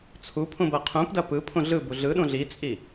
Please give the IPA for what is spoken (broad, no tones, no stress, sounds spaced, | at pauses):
t͡sʰ u pʰ ũ b ɐ qʰ ũ p d ɐ p ɯ pʰ ũ ɮ ɯ b u ɮ ɯ ɗ ũ ɮ i t͡sʼ i